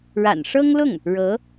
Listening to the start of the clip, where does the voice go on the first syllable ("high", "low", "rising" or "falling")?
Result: low